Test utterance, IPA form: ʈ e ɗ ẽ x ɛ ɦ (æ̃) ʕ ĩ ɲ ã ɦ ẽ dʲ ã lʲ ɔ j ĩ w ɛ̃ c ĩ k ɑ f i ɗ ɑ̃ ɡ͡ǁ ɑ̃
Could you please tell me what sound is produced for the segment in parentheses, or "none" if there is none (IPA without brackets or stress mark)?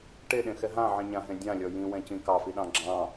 ã